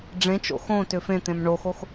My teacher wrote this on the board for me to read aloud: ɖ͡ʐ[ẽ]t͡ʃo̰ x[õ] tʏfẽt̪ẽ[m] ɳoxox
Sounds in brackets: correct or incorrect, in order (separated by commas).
correct, correct, correct